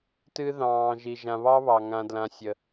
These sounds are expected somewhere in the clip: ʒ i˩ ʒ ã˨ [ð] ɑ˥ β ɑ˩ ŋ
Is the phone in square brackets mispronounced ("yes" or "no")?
yes